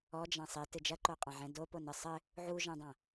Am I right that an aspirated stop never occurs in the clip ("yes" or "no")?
yes